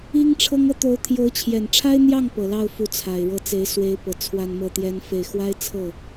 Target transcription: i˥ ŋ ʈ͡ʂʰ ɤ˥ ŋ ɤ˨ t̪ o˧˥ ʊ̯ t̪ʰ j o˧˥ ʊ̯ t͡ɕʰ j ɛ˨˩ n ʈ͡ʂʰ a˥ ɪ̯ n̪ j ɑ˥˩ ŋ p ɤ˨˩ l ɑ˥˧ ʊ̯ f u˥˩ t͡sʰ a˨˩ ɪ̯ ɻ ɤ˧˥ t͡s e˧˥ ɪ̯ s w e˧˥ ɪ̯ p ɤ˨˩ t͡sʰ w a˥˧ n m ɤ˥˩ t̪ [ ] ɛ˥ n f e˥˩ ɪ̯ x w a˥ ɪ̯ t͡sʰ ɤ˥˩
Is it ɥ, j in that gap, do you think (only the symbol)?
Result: j